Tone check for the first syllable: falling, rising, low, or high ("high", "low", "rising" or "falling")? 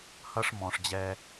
high